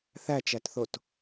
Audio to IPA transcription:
θ æ t͡ʃ æ t θ o t

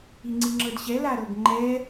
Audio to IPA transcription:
i ŋ͡ǀ i ŋ͡ǁ ɤ d ɕ ɛ l a ɾ ɤ ɡ ŋ͡ǃ ɛ

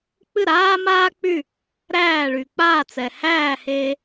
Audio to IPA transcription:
k͡p ɨ˥˩ ɾ aː˥ m aː˥ k͡p y˥˩ | ɾ æː˥˩ ɭ y˩ k͡p aː˥˩ t͡s ɛ˩ h æː˥˩ h eː˧

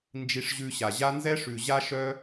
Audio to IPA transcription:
n d͡ʒ i˧ ʂ ʑ ʉ˧ ɕ a˨ ʑ a˦ n z ɛ˦ ʂ ʉ˨ ʑ a˧ ʃ œ˧

